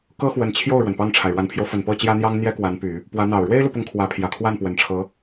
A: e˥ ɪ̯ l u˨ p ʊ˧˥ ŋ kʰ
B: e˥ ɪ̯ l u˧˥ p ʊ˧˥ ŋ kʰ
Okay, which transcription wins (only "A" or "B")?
A